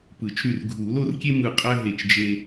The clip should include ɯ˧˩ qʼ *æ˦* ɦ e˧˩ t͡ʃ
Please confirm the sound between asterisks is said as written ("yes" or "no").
yes